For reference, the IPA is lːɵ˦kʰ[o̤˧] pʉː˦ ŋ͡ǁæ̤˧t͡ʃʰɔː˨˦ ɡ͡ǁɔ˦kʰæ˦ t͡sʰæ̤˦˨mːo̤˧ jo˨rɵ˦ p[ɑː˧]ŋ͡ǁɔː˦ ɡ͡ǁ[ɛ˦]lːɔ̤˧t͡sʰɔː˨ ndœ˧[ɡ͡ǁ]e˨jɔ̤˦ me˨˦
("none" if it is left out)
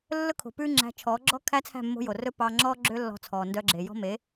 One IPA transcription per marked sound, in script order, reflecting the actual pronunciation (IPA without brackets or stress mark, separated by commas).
o̤˨, ɑː˧, ø˦, ɡ͡ǁ